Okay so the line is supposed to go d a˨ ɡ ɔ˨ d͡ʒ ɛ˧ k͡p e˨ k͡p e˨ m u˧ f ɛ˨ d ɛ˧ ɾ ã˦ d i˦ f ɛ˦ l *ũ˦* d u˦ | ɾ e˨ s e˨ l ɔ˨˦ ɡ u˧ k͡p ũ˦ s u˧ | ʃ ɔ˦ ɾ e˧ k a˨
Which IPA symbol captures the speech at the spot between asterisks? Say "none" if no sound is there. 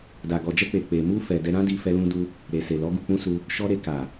ũ˦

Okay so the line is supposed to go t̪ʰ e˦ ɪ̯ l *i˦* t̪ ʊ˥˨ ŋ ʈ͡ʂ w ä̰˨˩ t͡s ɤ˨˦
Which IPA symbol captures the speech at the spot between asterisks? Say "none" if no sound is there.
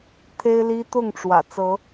i˦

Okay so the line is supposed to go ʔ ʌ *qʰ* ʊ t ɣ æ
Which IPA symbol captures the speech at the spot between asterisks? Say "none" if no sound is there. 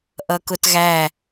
k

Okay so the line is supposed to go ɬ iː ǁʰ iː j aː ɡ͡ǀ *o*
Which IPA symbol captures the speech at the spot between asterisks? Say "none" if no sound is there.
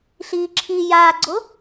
o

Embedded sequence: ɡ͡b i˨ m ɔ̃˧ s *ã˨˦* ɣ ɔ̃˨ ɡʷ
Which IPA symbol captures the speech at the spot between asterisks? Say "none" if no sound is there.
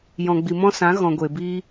ã˨˦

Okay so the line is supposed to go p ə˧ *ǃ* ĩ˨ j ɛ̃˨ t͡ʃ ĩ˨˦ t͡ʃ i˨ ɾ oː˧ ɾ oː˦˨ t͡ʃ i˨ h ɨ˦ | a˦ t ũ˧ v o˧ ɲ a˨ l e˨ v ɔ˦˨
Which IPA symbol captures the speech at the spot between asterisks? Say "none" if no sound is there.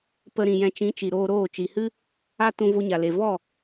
ɾ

